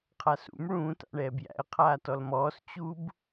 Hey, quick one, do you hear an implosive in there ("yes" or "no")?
no